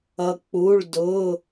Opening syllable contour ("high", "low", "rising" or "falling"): low